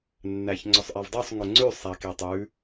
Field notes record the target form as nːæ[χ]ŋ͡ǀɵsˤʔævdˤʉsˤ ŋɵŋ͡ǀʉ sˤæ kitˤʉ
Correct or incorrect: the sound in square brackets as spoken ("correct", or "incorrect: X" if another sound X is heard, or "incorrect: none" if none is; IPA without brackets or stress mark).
incorrect: ç